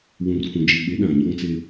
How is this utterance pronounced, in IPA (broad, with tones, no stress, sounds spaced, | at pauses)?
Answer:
w ũ˨ r k ũ˨ d͡ʒ i˨ ɓ e˨˦ ɗ ã˨ ɲ ɔ˦ ŋ t͡s e˦